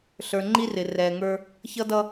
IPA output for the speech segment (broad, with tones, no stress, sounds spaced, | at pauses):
ɬ ə˞˨ ŋ͡ǃ i˦ r ɪ˨ r ɛː˨ ŋ ə˞˦ | ç ʌ˦ d ʌ˦